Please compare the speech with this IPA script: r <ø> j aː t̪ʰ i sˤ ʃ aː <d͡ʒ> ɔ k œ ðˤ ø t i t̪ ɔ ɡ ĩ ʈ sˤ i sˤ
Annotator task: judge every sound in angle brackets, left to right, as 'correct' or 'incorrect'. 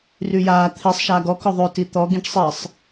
incorrect: y, incorrect: ɡ

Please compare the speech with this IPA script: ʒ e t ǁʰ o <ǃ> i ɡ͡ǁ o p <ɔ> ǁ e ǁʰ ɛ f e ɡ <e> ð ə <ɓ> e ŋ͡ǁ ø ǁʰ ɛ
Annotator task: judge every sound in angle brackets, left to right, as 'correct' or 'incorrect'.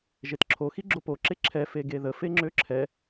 incorrect: x, incorrect: o, correct, incorrect: f

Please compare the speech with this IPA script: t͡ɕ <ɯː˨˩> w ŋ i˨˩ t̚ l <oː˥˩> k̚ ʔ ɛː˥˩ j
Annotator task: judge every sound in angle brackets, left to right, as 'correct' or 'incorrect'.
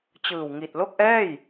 correct, incorrect: o˥˩

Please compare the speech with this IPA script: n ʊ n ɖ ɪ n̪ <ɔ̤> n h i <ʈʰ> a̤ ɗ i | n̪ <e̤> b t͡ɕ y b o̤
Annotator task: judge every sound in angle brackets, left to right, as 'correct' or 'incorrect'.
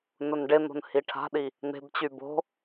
incorrect: o̤, correct, correct

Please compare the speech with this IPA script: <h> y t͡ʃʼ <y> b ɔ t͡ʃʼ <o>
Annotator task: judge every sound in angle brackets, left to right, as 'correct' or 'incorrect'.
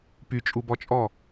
incorrect: p, incorrect: u, incorrect: ɔ

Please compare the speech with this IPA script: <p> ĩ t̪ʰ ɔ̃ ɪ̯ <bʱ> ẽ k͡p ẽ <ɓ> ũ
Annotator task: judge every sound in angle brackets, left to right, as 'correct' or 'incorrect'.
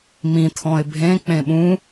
incorrect: m, correct, correct

